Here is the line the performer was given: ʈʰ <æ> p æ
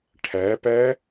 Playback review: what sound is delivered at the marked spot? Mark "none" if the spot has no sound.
æ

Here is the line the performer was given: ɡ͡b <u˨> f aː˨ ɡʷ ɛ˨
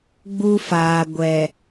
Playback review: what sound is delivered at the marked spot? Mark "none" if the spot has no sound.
u˦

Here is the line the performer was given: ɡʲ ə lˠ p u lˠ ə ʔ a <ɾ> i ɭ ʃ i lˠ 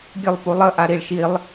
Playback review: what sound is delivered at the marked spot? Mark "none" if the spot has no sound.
ɾ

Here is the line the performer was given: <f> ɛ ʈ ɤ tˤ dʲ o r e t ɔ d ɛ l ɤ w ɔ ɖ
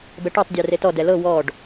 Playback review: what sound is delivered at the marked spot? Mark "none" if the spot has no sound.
b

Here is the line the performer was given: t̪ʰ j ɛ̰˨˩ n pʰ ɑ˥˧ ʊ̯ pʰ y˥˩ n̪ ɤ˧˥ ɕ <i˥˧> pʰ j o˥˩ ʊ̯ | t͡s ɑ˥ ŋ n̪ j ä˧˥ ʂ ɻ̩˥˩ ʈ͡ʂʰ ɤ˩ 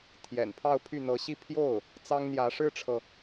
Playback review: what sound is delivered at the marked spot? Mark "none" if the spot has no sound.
i˥˧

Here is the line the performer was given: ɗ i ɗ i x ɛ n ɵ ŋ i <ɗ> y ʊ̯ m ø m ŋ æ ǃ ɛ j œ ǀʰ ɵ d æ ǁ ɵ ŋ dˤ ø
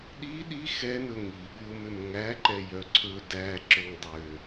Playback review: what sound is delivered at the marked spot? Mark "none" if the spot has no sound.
ɠ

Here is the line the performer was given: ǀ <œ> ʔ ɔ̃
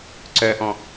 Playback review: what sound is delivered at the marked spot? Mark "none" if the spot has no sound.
œ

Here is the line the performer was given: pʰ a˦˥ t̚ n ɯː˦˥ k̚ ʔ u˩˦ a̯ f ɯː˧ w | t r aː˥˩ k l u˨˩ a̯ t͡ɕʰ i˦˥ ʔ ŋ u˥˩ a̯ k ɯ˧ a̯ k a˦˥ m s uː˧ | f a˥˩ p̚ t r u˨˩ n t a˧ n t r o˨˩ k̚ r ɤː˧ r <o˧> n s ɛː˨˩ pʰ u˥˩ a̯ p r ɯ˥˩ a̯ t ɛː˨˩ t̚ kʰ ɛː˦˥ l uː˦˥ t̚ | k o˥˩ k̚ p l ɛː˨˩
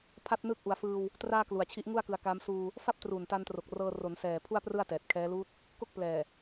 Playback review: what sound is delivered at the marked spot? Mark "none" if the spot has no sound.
o˩˦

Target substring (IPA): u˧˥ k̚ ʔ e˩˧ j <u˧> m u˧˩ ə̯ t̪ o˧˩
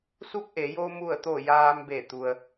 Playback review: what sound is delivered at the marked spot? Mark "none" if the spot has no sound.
o˧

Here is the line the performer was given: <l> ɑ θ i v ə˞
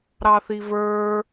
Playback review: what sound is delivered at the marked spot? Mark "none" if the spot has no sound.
ɾ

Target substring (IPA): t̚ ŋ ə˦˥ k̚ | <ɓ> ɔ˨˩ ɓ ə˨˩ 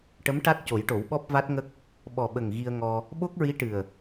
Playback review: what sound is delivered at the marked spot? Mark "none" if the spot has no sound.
ɓ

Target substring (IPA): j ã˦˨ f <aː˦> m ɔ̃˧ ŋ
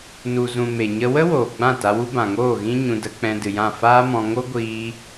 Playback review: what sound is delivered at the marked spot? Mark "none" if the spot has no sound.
aː˦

